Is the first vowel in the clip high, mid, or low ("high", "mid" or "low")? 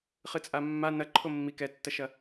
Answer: high